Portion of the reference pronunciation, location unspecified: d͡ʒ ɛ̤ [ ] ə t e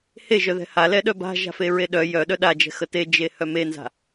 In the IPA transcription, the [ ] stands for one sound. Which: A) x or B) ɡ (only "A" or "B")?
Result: A